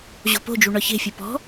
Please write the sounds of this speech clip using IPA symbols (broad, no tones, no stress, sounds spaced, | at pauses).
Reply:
ʑ o̤ p o̤ d͡ʒ u ɳ ɒ ç e̤ fʲ u p ɔ̤